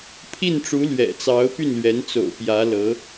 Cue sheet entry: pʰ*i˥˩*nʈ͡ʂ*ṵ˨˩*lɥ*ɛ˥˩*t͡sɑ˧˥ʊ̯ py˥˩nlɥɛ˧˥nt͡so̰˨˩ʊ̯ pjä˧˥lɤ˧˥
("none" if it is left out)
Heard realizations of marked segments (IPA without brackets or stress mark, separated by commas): i˥˩, u˧˥, ɛ̰˨˩